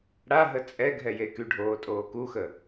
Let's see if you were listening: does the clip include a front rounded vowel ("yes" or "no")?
yes